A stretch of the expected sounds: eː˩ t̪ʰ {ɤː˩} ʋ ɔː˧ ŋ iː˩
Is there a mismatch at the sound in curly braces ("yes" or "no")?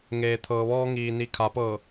no